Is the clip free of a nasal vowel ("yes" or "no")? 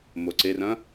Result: no